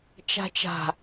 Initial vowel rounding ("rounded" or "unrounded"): unrounded